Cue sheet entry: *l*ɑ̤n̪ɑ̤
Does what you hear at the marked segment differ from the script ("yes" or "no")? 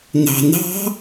yes